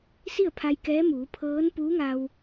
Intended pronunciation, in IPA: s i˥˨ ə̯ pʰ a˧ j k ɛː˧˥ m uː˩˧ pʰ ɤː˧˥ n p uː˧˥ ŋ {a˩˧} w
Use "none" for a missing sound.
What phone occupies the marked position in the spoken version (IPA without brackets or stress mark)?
a˧